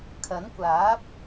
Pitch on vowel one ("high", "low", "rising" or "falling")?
rising